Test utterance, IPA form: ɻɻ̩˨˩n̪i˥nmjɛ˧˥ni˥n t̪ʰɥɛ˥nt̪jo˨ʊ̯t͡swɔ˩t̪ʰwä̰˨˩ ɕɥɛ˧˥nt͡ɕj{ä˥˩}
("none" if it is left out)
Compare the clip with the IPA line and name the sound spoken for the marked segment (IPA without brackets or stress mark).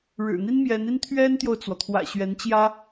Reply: ä˥